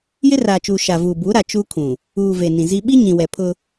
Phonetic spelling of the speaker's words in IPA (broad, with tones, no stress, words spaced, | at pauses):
jɪ˦raː˨t͡ʃuː˨ ʃa˨vuː˨ bu˨˦ ɾa˨t͡ʃu˦ kʰũ˨ | uː˨ ve˨ nĩ˨zi˦ ɓi˦ ɲĩ˨wɛ˨pʰʊ˦